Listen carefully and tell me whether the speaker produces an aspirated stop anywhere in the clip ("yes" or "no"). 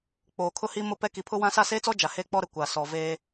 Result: yes